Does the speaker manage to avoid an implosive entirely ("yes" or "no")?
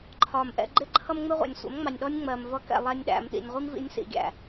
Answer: no